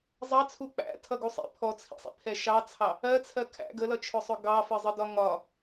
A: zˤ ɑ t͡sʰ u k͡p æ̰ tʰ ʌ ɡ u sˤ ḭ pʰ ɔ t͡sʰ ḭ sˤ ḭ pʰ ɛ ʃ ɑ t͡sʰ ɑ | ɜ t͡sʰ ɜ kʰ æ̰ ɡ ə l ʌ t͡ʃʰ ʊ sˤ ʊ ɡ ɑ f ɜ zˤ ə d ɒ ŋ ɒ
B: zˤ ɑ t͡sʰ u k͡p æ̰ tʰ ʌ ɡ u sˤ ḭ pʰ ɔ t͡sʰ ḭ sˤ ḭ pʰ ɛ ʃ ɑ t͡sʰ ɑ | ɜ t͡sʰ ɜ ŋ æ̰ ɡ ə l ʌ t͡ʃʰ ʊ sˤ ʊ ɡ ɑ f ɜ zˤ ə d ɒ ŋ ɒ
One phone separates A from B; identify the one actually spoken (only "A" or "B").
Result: A